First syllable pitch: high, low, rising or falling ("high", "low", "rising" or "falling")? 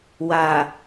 low